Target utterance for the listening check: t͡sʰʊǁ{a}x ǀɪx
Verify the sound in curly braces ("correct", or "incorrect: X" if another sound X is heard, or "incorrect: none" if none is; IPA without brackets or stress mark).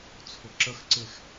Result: incorrect: ə